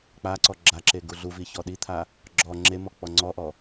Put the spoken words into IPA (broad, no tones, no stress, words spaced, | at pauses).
k͡paǀɔ ɡ͡ǁaǁe ɡuɮuvi çɔɗit̪ʰa | ɡ͡ǁɔ ŋ͡ǁemɔ k͡pɔŋ͡ǀɔʔɔ